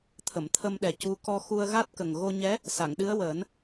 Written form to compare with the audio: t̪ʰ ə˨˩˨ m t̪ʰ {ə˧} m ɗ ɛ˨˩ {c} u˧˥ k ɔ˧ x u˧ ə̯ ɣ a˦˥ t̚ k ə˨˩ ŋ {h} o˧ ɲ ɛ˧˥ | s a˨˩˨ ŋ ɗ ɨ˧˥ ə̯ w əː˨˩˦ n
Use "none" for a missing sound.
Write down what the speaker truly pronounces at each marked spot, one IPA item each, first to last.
ə˧, c, ɣ

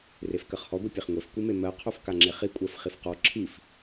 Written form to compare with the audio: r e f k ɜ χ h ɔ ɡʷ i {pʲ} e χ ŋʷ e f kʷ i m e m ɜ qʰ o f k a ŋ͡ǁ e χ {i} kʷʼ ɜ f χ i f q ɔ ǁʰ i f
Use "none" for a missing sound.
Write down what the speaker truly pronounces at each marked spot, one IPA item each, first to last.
pʲ, i

